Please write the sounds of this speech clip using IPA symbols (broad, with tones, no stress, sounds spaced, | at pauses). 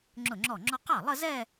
ŋ͡ǁ ʊ˥˩ ŋ͡ǁ ɔ˥˩ ŋ͡ǁ ɔ˥ q ɑ˥˩ lˠ ə˥˧ z ɛ˥˧